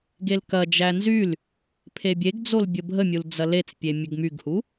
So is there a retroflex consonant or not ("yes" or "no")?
no